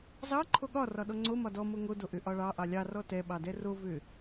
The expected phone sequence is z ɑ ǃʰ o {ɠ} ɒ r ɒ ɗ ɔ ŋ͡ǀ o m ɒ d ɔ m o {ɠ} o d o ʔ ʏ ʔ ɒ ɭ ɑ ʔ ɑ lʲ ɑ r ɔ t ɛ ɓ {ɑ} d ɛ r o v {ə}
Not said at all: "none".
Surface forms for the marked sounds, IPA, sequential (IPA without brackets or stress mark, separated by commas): ɠ, ŋ, ɑ, ʏ